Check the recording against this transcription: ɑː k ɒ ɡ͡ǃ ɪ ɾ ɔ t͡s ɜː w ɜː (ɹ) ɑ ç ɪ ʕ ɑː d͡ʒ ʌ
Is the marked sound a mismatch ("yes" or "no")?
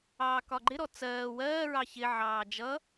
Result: no